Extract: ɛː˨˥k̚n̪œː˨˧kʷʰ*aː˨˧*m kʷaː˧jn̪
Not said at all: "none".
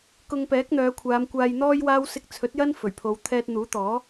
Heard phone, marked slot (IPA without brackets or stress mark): aː˨˧